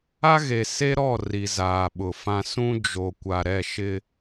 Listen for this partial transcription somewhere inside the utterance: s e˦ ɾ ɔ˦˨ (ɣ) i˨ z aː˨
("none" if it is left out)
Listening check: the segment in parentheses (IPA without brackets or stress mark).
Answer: r